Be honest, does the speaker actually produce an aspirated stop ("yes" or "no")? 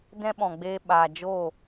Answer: no